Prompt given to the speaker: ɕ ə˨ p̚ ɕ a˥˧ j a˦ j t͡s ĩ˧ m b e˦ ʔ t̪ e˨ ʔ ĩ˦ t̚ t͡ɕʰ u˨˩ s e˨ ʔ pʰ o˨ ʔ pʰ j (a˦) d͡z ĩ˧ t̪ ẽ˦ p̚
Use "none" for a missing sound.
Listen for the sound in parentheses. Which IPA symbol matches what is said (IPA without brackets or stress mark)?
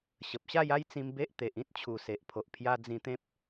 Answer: a˧